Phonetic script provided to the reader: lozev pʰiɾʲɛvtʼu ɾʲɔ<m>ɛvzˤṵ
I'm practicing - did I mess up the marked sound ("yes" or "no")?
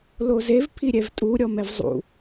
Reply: no